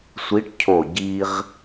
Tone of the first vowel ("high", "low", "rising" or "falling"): rising